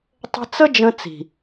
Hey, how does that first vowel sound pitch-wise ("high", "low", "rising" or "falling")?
high